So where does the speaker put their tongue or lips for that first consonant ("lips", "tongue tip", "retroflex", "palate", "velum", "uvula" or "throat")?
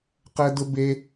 uvula